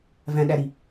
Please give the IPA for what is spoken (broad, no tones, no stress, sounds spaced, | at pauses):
v æ̃ ɗ æ ɾ i